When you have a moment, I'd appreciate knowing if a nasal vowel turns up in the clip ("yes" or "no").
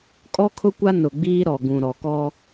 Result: yes